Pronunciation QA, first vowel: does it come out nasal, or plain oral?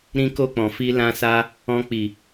nasal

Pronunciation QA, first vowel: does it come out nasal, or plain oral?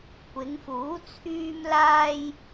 oral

